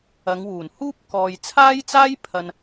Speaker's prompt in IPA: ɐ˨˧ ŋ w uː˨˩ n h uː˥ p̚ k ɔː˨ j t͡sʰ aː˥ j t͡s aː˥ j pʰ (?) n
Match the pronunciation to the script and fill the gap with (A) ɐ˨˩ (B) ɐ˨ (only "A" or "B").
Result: B